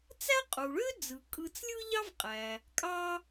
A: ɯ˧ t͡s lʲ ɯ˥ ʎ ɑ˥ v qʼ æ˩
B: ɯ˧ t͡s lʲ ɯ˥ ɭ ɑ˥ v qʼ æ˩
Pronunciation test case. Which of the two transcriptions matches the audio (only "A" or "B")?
A